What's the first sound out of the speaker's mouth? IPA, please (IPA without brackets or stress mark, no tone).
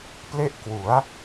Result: p